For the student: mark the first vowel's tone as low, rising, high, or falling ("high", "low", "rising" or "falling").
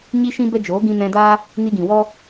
high